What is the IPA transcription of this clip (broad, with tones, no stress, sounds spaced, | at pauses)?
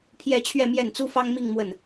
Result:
pʰ j ɛ˥˧ t͡ɕʰ ɥ ɛ˥˧ m j ɛ˥˩ n t͡s u˥ f ɑ˥ ŋ m i˥˧ ŋ m w ə˥˩ n